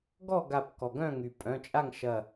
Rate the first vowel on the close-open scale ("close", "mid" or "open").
mid